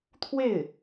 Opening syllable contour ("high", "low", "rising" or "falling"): falling